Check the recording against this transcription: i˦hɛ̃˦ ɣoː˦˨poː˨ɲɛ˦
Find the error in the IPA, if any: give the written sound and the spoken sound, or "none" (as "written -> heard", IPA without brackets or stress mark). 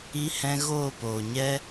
none